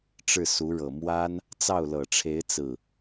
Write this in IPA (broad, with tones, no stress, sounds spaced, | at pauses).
ʈ͡ʂ ɻ̩˥˩ s u˧˥ ɻ ɤ˨˩ m w a˥ n | t͡s ɑ˥˩ ʊ̯ l ɤ˨˩ ʈ͡ʂʰ e˧˥ ɪ̯ t͡s ɹ̩˥˩